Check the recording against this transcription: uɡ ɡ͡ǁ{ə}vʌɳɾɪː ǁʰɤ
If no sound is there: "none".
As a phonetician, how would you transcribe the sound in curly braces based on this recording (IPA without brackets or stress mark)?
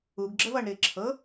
ə